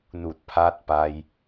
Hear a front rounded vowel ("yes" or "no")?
no